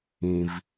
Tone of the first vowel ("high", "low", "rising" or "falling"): low